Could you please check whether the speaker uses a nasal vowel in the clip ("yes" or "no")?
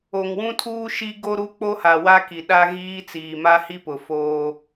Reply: yes